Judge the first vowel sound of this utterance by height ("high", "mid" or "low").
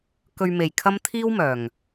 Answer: mid